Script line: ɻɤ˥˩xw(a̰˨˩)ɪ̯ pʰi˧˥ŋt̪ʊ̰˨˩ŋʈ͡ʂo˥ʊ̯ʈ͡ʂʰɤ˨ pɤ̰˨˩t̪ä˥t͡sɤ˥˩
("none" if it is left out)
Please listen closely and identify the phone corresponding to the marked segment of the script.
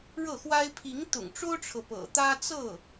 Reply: a˥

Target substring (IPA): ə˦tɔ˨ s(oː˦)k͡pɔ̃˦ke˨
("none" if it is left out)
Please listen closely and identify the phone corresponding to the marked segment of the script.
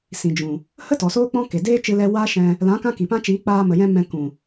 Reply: oː˦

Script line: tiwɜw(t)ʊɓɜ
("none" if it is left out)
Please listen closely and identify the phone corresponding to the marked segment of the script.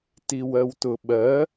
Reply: t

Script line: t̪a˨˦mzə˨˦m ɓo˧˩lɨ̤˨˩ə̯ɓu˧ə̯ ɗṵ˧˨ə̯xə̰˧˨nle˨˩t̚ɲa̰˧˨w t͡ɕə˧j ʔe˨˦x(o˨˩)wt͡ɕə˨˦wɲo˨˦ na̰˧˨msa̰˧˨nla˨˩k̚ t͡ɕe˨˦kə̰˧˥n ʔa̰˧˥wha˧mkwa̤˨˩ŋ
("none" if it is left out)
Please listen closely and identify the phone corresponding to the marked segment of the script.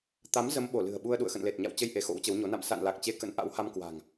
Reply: o̰˧˥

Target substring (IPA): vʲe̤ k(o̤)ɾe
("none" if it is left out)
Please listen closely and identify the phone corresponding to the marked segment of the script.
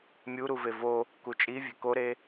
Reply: o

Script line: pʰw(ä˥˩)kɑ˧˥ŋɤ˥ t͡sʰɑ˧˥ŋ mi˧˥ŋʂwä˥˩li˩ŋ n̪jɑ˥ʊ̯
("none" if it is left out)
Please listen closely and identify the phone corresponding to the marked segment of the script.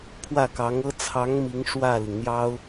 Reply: ä˥˩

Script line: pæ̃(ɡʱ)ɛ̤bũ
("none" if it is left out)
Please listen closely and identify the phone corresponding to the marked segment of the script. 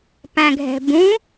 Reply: ɡʱ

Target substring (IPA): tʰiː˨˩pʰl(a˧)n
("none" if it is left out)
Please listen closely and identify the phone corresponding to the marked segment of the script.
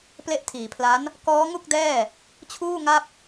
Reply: a˦˥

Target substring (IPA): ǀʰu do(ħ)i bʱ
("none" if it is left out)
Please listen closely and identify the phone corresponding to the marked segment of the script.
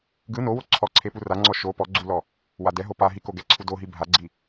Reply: ɦ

